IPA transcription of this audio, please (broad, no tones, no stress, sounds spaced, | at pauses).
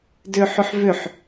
d ʏː ħ ʏ ħ v ʏ ħ